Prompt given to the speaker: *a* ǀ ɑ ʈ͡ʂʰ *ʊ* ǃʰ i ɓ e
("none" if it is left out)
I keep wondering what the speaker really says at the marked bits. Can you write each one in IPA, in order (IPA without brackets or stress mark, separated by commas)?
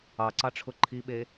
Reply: ɑ, ʊ